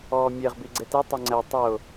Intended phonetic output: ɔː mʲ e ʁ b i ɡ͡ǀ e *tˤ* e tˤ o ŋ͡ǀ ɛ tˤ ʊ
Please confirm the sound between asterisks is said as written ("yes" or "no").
no